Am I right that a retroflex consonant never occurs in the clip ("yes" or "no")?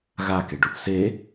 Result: no